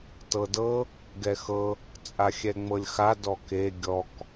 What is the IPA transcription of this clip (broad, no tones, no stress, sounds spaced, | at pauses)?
t ɤ d ɤ | ɡ ɛ x ɤ | t͡sʼ a xʲ ɛ ŋ͡m ɤ lʲ x a d ɔ k e ɡʲ ɔ k